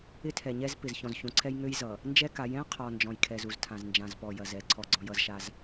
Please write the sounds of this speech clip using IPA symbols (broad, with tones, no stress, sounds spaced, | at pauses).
ɪ˦ tʰ ɛ˨ ɲ ɛ˦ z p ɪ˨ z ç ɔ̃˨ z ç ũ˨ ǀʰ ɛ˦ j ŋ ø˦ j z ʌ˨ | n d͡ʒ ɛ˦ k a˨˦ j ɛ̃˦ qʰ ɔ˨ n d͡ʒ ɔ̃˨ j kʰ ɛ˨ z u˨ z tʰ ã˨ z n d͡ʒ ã˨ z p ɔ˨ j ɐ˨ z ɛ˨ ǀʰ ɔ˦˨ ɡ͡ǀ ɔ̃˦ j ʌ˦ z ʃ a˦ z